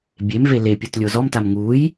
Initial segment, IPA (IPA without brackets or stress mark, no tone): bʲ